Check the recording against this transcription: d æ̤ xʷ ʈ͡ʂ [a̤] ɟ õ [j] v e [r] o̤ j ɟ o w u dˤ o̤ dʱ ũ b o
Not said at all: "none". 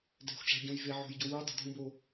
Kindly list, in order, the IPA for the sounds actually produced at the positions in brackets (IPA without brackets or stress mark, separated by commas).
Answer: æ̤, j, ʕ